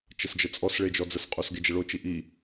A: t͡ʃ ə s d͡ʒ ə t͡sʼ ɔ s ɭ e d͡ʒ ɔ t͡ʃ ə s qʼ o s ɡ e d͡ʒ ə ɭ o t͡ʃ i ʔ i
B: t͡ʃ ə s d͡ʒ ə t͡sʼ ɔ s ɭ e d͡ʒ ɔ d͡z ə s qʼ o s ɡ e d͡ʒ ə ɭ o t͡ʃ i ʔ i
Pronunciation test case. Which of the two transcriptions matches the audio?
B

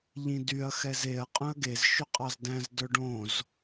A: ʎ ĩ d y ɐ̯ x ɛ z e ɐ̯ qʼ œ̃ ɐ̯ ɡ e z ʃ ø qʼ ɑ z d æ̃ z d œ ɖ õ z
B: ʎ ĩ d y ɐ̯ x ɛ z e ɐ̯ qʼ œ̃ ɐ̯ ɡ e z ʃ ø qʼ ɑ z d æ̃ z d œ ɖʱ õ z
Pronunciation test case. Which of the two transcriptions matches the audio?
A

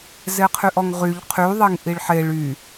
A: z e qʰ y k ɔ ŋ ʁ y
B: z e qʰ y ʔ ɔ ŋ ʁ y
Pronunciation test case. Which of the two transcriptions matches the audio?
B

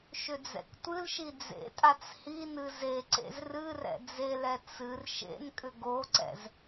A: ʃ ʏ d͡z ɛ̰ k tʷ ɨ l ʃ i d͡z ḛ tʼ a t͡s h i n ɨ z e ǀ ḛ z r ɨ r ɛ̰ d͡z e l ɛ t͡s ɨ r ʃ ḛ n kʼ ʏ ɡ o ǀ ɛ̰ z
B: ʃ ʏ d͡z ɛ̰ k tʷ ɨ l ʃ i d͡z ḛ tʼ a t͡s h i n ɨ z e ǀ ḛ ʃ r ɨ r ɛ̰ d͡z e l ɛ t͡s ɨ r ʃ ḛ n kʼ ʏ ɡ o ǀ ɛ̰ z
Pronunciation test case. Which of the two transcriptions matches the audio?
A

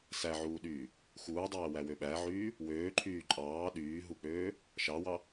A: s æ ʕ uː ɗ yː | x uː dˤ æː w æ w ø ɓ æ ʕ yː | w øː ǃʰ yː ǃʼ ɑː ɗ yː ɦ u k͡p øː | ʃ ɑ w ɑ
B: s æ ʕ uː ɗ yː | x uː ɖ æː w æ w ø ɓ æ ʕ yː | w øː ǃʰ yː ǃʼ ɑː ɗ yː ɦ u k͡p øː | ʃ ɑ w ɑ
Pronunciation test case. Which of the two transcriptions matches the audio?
A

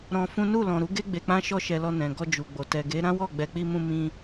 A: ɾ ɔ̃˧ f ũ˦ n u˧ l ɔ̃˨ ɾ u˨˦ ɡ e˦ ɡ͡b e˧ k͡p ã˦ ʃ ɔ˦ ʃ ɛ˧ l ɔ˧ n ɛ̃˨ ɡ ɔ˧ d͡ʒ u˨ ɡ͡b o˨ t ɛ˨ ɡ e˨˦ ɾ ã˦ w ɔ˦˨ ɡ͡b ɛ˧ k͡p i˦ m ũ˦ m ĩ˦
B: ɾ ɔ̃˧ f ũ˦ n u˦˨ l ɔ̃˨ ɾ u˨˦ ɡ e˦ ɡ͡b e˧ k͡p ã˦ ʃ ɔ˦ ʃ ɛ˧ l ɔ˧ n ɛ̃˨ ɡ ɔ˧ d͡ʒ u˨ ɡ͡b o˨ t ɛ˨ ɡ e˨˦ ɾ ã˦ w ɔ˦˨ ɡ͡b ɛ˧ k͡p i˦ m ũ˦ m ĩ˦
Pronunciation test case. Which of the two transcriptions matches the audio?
B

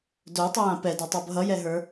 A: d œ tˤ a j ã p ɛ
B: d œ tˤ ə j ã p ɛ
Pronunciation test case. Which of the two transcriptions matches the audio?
B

